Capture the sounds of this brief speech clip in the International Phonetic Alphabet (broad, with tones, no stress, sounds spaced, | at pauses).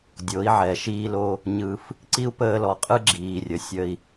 dʲ o˨˦ i̯ ʕ ɛ˨ ʃ iː˦ l o˦ | ɲ ɯ˧ f | ǀ i˦ u̯ p əː˧ l ɔ˨ qʼ ɯ˦ ɡ͡ǁ iː˨ rʲ ə˨ sʲ ə˧ i̯